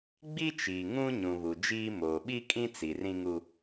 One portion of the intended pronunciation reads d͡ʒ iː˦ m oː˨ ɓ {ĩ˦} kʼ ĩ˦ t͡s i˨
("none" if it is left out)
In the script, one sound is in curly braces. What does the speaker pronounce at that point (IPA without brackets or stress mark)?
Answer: i˦